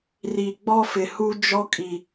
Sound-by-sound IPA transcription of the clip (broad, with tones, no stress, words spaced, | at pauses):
ri˨ ɡ͡bɔ˦fɪ˨hu˦d͡ʒɔ˦ kʼi˨